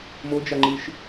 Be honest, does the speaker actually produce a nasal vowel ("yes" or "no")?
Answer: no